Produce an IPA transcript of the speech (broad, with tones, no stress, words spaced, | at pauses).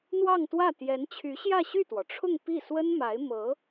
n̪wɑ˥˧ŋt̪wä˥˩ t̪jɛ˧˥nt͡ɕʰy˧˥ɕjä˥˧ ɕy˥˩t̪wɔ˩ʈ͡ʂʰʊ˥˧ŋ pi˥˩ swə˥nma˧˥ɪ̯ mɤ˧˥